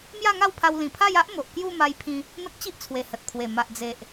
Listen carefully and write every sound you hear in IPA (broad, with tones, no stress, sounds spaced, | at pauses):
m j a˥˧ ŋ a˥˧ w pʰ a˧ w l ĩ˨˩ pʰ a˥˧ j a˦ ʔ m o˨ ʔ k j u˥˧ m a˧ j pʰ ĩ˧ | n̪ ə˦ k̚ t͡ɕ i˦ ʔ t͡sʰ w e˨˩ h ə˨ t̚ pʰ w e˨˩ m a˨ ʔ d͡z e˨ ʔ